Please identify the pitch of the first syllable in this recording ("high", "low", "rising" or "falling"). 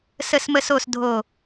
falling